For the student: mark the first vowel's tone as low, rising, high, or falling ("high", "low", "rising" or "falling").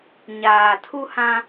low